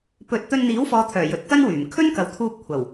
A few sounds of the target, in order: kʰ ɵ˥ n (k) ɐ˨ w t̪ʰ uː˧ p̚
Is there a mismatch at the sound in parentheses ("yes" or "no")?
no